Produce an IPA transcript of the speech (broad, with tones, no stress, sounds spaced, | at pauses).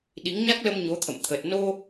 ɗ i˨˦ ŋ ɲ a˦˥ k̚ l ə˧ m ɲ o˨˦ t̪ʰ ə̰˧˨ m t̪ʰ ə˨˩ t̚ n o˧